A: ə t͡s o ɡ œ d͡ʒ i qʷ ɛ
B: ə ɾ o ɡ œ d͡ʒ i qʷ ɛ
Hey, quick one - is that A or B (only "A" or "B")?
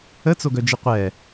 A